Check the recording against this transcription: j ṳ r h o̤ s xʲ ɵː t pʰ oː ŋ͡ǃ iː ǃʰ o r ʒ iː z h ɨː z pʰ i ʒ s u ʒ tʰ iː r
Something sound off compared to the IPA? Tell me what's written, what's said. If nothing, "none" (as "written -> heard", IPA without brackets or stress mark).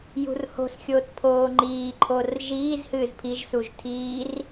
ɵː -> oː